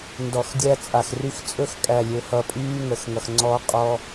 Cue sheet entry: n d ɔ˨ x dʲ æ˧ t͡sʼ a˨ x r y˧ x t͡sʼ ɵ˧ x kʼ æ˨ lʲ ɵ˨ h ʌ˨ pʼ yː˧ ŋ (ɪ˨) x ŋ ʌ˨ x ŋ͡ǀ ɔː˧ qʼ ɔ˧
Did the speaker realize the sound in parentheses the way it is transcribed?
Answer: no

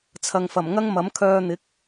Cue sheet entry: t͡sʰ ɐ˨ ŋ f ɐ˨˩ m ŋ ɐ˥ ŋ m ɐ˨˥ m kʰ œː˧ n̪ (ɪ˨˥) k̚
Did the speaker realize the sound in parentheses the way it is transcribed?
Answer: yes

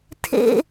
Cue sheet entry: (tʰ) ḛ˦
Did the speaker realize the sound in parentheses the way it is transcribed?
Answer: yes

